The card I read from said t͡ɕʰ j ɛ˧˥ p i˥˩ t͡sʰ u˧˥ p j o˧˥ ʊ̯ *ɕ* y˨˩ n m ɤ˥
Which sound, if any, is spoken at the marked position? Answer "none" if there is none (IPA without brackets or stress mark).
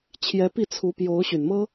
ɕ